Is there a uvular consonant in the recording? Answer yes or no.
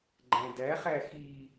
yes